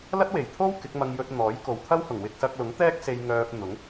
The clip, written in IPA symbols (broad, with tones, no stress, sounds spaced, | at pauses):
l ɐ˥ t̚ w e˨˩ j t̪ʰ o˥ w k ɪ˨˥ k̚ m ɐ˧ ŋ j ɵ˧ t̚ n̪ ɔː˨˥ j k o˨˧ w t̪ʰ ɐ˥ w h ʊ˨˩ ŋ w ɪ˧ k̚ s ɐ˧ k̚ l ʊ˨˥ ŋ t̪ ɛː˥ k̚ s e˧ j ŋ œː˧ p̚ n̪ ʊ˨˥ ŋ